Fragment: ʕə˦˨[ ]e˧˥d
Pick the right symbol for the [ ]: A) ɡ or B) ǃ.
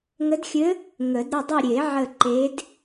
B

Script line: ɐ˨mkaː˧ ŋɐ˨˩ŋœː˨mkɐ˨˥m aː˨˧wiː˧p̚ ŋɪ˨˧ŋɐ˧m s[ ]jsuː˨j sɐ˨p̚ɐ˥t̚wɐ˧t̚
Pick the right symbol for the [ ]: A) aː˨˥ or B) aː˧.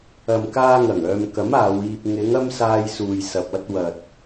B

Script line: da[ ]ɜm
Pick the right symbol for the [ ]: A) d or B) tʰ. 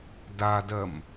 A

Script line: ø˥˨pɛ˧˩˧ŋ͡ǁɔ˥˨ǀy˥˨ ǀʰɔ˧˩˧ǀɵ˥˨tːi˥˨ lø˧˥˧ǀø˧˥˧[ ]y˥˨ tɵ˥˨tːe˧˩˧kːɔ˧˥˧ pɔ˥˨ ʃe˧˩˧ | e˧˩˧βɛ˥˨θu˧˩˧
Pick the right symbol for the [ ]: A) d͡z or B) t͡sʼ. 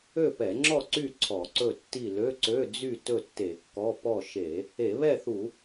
A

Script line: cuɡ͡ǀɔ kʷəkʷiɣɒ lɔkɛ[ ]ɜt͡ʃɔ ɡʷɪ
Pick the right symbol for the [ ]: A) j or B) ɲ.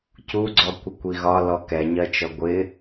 B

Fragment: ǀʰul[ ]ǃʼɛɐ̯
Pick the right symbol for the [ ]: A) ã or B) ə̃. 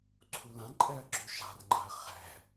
A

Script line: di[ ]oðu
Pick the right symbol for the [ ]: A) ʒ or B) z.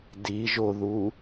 A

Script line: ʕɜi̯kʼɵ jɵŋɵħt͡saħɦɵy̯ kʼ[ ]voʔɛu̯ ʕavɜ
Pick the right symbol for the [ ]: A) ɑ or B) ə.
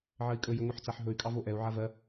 A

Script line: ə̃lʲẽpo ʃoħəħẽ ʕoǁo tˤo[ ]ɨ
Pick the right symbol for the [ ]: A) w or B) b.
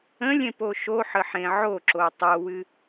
A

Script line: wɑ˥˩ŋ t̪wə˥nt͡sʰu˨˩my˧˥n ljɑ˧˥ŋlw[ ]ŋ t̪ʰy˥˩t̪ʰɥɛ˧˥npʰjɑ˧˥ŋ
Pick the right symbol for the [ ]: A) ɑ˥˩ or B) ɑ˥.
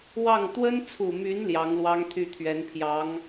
B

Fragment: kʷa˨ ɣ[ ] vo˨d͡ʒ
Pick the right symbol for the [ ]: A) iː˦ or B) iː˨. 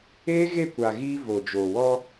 A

